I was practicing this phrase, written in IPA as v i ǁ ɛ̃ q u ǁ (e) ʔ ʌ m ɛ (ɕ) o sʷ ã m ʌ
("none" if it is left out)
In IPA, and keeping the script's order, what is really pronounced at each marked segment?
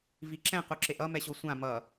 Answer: e, ɕ

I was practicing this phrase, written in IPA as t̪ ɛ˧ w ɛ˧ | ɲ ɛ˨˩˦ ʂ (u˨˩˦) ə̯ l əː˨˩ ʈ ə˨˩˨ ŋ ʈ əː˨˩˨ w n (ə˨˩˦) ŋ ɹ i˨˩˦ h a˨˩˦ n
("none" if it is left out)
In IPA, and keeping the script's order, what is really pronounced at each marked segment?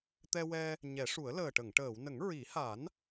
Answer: u˨˩˦, ə˨˩˦

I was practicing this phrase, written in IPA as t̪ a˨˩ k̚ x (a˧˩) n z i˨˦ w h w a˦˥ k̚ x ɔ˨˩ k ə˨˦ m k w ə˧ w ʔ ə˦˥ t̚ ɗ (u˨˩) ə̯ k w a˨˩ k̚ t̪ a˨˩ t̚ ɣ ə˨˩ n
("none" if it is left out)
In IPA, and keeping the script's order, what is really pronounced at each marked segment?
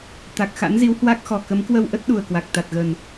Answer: a̰˧˥, u˨˩

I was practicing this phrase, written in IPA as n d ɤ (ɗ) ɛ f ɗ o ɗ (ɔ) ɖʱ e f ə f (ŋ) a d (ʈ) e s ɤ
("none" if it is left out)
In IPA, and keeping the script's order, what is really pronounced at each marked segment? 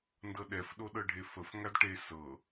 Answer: ɗ, ɤ, ŋ, ʈ

